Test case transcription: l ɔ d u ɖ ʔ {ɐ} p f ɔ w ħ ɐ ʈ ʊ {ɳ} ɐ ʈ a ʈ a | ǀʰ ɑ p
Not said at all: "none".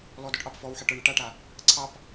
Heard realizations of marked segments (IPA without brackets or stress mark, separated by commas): ɑ, ɳ